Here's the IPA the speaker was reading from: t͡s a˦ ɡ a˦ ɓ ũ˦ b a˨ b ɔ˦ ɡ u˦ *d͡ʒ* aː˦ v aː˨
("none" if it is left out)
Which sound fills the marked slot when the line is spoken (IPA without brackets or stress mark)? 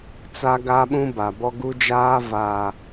d͡ʒ